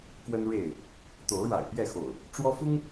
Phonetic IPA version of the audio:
k w ə˦ n ɻ e˥˨ ɪ̯ | t̪ o˨˦ ʊ̯ ɻ a̰˨˩ ɪ̯ p j ɛ˥˨ x o̰˨˩ ʊ̯ | ʈ͡ʂ w ɔ˦ f ʊ˦ ŋ

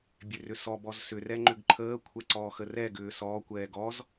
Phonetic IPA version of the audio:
bʲ e r ʏ s ɔ b ɔ z s ʏ r ɛ ŋ͡ǃ ʏ ɡ ǃʰ əː kʷʰ ɛ ǀ ɔː x ə r ɛ ɡ ʏː s ɔː kʷ ɛː ɡ ɔ z

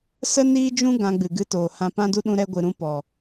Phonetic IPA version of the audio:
s ə˦ n iː˦ d͡ʒ ũ˦ ɡ ã˧ ɡ͡b ɨ˨ ɡ ɨ˧ t oː˨ h ã˧ p ã˦ d u˦ ɗ ũ˧ ɾ ɛ˧ ɡʷ ɨ˨ ɾ ũ˧ p ɔ˨

